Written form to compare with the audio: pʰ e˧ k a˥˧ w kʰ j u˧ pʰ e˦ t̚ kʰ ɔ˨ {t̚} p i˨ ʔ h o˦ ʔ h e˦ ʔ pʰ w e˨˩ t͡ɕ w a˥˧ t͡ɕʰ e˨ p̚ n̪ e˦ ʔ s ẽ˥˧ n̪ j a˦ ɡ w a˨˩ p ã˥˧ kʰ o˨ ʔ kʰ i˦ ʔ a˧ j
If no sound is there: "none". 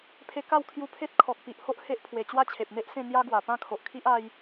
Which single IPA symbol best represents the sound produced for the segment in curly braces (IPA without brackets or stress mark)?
k̚